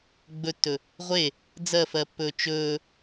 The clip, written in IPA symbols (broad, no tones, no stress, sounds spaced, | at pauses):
ɡ͡b ɵ tː ɵ | ʁʷ e | d͡z ɜ f ɜ pː ɵː t͡ʃ ɵː